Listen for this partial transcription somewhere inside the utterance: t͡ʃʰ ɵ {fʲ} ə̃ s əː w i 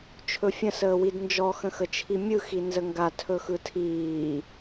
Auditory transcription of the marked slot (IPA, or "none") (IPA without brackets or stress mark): fʲ